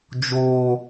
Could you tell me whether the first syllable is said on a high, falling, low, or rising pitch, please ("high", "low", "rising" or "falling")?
high